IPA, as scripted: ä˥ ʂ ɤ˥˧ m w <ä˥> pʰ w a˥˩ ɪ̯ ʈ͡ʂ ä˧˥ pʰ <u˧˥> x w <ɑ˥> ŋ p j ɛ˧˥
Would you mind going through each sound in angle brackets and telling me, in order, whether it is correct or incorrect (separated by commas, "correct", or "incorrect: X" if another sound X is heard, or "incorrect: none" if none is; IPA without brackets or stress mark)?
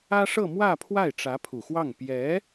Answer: incorrect: ä˥˧, incorrect: u˨˩, incorrect: ɑ˥˩